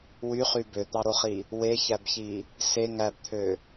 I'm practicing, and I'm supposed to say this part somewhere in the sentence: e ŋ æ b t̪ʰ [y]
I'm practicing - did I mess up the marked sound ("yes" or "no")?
yes